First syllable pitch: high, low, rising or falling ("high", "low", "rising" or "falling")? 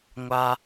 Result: low